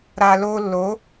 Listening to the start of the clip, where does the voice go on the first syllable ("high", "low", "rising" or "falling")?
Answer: low